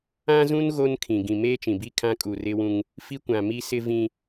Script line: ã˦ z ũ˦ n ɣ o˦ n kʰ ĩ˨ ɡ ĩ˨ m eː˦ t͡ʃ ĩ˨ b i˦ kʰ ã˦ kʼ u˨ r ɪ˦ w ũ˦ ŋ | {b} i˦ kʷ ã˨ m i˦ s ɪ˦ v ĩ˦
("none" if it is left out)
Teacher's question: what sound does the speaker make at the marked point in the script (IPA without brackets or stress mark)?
f